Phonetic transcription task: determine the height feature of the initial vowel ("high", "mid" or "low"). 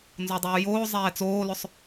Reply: mid